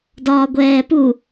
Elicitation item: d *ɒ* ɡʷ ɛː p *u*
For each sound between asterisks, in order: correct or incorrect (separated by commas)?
incorrect, correct